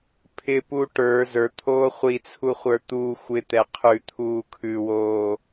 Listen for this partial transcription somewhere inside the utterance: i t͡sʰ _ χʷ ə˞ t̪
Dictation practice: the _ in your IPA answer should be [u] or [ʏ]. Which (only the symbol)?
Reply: u